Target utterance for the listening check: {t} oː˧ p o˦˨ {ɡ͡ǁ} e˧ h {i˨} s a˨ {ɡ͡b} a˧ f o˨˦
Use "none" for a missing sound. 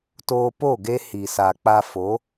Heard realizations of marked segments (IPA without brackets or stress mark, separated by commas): t, ɡ, i˨, k͡p